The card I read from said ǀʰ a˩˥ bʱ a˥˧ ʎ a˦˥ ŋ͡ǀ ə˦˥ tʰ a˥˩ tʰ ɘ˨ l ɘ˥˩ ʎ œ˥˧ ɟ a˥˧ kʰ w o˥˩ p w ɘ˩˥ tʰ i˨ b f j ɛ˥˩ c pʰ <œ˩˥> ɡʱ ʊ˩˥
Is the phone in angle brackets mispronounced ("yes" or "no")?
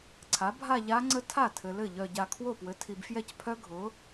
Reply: yes